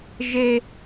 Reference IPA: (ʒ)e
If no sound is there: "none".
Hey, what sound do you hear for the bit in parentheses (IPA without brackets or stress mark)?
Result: ʒ